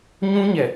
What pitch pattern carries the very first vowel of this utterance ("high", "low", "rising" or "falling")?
high